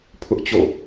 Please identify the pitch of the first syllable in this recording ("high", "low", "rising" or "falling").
high